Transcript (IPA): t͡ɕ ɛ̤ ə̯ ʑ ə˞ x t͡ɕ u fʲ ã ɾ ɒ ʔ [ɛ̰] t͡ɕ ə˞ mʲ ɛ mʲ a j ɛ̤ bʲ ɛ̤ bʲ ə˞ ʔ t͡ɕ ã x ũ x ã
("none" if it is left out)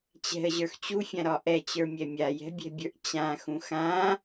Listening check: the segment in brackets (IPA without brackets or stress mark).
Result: ɛ